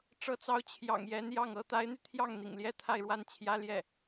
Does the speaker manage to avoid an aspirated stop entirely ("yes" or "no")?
no